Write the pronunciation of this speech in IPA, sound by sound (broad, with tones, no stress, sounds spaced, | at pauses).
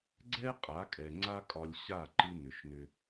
ɡ͡ǀ ɛ˦ qʼ a˨˦ kʼ ɛ˨ ŋ͡ǀ a˦ kʼ ɒ˧ lʲ ɕ a˦˨ ǃ ɨ˧ n ʏ˨ ʃ n ʏ˧